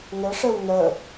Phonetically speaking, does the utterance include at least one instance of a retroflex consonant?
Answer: yes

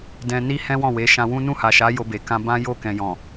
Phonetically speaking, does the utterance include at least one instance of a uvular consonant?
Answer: no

